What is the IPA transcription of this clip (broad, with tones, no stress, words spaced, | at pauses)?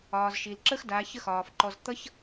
ɒː˨zʃi˨l ǁə˦x daː˨˦çə˦xɒː˨fǃɔ˧z t̪ʌ˦ç